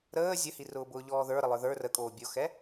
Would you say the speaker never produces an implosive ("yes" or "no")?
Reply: yes